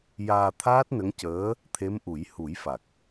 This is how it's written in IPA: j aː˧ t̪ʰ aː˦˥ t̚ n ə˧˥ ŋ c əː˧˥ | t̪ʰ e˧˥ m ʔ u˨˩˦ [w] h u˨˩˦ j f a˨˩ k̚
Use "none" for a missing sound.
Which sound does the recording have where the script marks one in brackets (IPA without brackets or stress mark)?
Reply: j